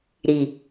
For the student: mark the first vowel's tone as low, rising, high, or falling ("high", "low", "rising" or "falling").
low